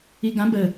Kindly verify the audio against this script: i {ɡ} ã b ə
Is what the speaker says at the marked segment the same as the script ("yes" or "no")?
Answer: yes